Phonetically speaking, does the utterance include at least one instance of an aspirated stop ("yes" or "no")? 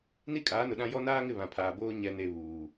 yes